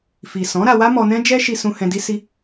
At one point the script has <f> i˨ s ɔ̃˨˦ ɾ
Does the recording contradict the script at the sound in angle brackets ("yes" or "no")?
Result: no